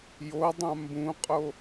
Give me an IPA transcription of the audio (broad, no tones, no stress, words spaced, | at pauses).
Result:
jo dˤãmbũqʼo